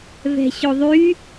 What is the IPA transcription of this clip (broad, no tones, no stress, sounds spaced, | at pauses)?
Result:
v ɛ̤ ɕ o ðˤ y